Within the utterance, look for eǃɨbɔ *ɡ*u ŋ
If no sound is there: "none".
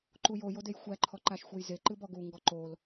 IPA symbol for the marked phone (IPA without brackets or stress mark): ɡ